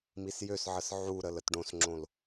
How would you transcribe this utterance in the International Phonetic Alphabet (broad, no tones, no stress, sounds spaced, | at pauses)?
m i s j ø s ʕ ə s ʕ u ɾ ə l ə t ɖ õ s ŋ͡ǁ õ l